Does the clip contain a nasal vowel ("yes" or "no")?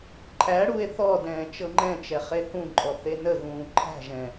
yes